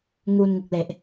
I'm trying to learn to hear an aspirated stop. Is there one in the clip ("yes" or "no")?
no